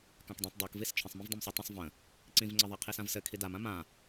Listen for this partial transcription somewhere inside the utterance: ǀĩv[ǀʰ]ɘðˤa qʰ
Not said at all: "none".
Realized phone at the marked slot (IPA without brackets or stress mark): ŋ͡ǀ